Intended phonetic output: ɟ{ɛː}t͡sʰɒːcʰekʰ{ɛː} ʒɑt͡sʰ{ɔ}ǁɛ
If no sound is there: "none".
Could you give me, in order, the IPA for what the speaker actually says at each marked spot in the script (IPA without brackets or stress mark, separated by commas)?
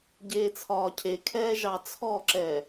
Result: eː, ɛː, ɔ